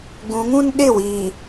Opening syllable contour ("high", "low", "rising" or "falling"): rising